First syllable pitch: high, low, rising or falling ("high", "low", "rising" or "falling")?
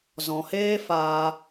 low